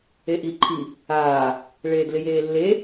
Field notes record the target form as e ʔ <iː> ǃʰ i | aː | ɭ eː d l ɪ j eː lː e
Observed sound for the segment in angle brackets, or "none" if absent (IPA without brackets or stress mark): i